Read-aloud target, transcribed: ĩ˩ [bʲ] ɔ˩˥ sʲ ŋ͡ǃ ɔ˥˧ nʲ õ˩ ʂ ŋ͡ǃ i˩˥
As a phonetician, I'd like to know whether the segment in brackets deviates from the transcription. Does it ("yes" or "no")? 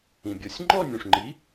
no